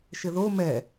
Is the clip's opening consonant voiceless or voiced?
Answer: voiceless